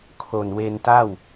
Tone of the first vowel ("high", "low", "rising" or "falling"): low